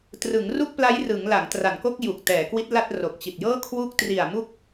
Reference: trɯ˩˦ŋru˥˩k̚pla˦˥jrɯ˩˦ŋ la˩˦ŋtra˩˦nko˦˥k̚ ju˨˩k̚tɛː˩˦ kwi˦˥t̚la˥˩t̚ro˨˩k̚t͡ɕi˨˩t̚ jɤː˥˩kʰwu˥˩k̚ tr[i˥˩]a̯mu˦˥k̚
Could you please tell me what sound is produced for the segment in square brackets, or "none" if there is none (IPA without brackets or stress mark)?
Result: i˨˩